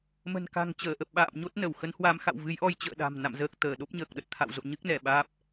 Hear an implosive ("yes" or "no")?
yes